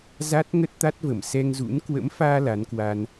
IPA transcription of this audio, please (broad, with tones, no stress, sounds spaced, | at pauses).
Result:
z a˦˥ t̚ ŋ ə˦˥ t̚ t̪ a˦˥ t̚ v ə˧˩ m s ɛ˧ ŋ z ṵ˧˥ n k w ə̰˧˥ m f aː˧ l a˨˦ n k w aː˧ n